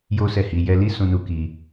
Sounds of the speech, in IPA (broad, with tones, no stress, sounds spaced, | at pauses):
j o˦ s ɛ˦˨ h i˧ j ɛ˧ l i˦ s ũ˧ n u˧ k i˧